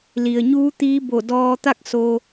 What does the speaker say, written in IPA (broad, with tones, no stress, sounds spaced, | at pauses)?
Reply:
l i˩ ə̯ ɲ uː˧˥ t̪ iː˧˥ b o˧˩ d ɔː˧ t̪ a˥˨ k̚ s oː˧